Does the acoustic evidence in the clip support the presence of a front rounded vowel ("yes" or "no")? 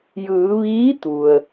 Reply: no